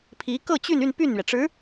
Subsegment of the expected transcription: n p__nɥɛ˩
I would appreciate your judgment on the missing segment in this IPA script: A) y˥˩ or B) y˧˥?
A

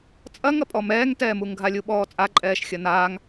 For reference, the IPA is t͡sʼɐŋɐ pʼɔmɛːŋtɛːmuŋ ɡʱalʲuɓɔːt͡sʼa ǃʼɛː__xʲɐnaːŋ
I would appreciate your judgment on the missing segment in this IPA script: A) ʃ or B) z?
A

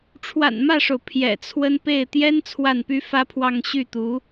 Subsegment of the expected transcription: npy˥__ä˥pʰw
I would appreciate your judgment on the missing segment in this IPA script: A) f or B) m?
A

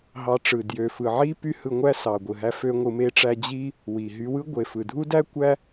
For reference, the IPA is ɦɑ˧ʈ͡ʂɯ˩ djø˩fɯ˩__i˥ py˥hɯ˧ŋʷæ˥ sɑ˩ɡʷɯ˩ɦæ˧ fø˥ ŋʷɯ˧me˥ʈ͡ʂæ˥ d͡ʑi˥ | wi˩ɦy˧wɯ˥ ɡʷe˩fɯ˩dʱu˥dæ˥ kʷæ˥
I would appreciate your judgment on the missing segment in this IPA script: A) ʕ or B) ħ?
A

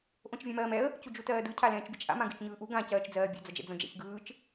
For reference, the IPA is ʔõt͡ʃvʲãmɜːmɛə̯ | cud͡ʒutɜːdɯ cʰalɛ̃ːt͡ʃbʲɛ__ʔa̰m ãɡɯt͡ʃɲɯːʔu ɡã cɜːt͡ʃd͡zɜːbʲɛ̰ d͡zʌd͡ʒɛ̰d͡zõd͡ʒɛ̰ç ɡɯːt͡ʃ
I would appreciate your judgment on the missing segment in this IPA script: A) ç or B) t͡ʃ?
B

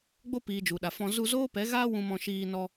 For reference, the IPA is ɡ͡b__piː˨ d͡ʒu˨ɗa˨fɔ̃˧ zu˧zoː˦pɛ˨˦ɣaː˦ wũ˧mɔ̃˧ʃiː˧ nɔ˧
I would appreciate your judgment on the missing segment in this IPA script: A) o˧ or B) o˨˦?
A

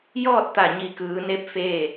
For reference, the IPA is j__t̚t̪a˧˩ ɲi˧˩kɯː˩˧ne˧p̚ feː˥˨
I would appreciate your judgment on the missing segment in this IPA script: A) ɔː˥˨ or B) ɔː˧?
A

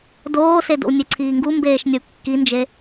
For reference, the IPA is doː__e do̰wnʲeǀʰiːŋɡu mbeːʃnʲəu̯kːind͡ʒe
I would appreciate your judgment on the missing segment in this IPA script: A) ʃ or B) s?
B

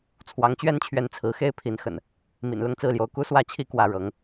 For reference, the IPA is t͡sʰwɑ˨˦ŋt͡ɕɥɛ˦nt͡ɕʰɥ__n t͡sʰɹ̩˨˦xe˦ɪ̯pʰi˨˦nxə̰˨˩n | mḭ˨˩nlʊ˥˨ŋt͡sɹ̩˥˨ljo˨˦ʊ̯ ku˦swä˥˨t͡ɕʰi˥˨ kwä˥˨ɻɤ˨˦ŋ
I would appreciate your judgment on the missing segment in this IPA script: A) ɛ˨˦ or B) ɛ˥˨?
A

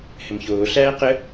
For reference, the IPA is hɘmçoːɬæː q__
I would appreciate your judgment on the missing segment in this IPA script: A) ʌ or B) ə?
B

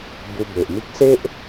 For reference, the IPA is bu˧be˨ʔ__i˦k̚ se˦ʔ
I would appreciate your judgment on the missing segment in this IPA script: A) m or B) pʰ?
A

